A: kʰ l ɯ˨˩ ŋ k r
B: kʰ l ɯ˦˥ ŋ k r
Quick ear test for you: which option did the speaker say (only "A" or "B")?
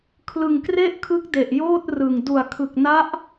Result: A